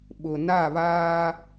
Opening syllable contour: low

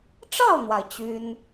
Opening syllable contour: falling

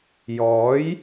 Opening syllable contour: rising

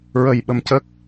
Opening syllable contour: low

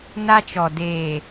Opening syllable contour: high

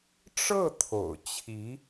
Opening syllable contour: falling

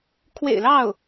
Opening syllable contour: low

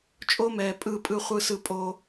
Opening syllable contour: high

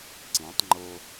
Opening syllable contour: rising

